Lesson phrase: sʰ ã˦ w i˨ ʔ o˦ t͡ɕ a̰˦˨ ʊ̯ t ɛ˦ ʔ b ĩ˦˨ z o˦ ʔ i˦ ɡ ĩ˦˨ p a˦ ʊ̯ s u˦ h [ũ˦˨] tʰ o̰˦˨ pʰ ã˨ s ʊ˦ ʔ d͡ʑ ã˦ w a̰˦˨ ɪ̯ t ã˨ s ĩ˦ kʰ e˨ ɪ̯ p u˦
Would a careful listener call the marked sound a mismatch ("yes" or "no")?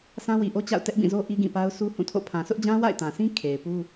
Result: no